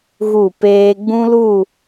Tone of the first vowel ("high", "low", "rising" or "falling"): falling